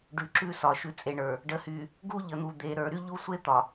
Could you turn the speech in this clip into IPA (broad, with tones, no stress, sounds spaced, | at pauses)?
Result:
ɖ ʉ˨ ǁ ʉ˦ s ɒ˨ ʃ ʉ˨ t͡sʼ e˨ ɳ ə˞˨ | ɖ ə˨ h y˨ | ɡ u˦ ʎ ə˨ n̪ u˨ d̪ e˨ ɾ ə˞˨ ɾ y˦ ʎ u˦ sʷ e˦ t̪ ɒ˨